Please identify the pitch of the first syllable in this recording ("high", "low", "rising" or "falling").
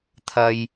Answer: low